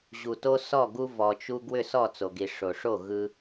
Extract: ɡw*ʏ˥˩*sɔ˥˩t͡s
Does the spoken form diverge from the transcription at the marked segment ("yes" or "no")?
no